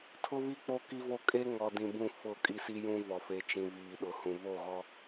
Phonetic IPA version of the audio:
tʰ ʊ˦ β i˦ k͡p o˦ k i˦ v o˦ kʼ e˦ ŋ ɔ˨ d ĩ˨ b ũ˦˨ f ʊ˦˨ kʼ i˦ s i˦ j ũ˦ v ɔ˨ f e˨ t͡ʃ ĩ˨ β iː˨ ɗ ʊ˨ h ũ˨ β o˦˨ ɣ ɔ˦

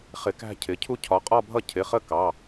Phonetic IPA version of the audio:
χ ɪ˧ k æ̤˥˧ cʰ ɪ˩˥ cʰ u˥ cʰ ɒ˩˥ qʼ ɒ˥˧ bʱ ʌ˥˧ cʰ ɪ˩˧˩ χ ə˥˧ k ɑ˩˧˩

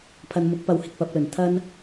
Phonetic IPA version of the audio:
pʰ ɐ˨ n m ʊ˨˥ k̚ p ɐ˨˧ w h ɪ˧ k̚ p ɐ˨˥ p̚ l ɵ˨˩ n t̪ʰ ɐ˥ n

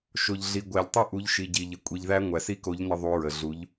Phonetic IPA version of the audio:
ʃ o˩ ʎ ɮ i˩ ɡʷ æ˩ ʎ tˤ i˧ ʔ u˩˧ ʎ ʃ i˩ ɟ i˩ ʎ ə˩ kʷʼ i˩ ʎ ð æ˧ ŋʷ æ˩ s i˧ k o˩˧ ʎ n ə˧ ðˤ u˩˧ ɹ ə˩ ɮ u˩˧ ʎ

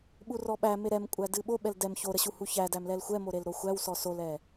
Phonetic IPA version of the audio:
ɓ u r ɔ ɓ æ m e ɾ ɛ m kʷʼ æ d ɨ ɓ o ɓ ɛ l d ɛ m ç o ɾ ə ɕ u h u ç æ d æ m l ɛ l xʷ ɛ m o ɾ e l ɾ o xʷ æ w s ɔ s o l ɛ

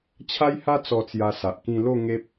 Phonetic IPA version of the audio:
t͡ɕʰ a˦ j h a˦ t͡s ɔ˧ t͡s j a˧ s a˨ ʔ k ĩ˧ l o˥˧ ŋ e˦ p̚

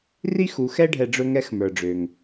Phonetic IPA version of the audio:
r i˥ x u˩˧ x ɛ˥ ɖʱ ɛ˧ ɖ͡ʐ ɵ˥ ŋ ɛ˧ x m ə˞˩ ɖ͡ʐ ø˩ ŋ

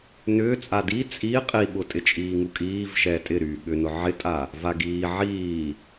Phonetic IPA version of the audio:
n ʏː t͡sʼ a d i t͡sʼ i qʼ i ɓ ʊ tʼ ɪ t͡ʃʼ iː ŋ u kʼ iː v ʃ ɛː tʼ ɪ ɾ yː ɠ ʏ n ʊ ʕ ɪ tʼ a | v a ɡ iː ʕ iː

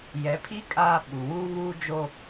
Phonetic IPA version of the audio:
j ɛ˨˦ pʰ iː˦ kʼ aː˦ ɓ u˨ w uː˦ β uː˦ d͡ʒ o˦

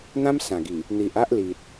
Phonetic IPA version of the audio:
n̪ ã˦ m s ã˨˩ ɡ i˨˩ | n̪ i˨ ʔ a˦ ʔ l i˨ t̚

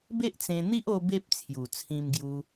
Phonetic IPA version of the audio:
b e˦ ʔ t͡s ẽ˧ n̪ i˦ ʔ o˦ b e˦ p̚ t͡sʰ j u˨˩ t͡sʰ ĩ˧ m ɡ j u˧

